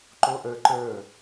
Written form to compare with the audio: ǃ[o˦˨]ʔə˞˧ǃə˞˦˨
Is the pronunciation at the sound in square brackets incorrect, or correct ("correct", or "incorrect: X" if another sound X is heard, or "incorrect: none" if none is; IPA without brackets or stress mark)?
incorrect: o˦